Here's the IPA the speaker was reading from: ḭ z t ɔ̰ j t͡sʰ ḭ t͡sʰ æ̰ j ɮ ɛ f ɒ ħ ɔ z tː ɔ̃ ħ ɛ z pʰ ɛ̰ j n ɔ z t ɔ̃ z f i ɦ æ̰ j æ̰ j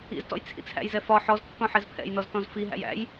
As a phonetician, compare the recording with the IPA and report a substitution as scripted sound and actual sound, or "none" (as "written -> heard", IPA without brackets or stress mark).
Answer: ɮ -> z